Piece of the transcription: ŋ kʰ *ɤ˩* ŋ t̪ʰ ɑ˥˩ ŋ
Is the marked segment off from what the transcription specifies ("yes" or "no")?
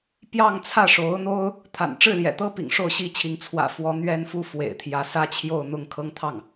yes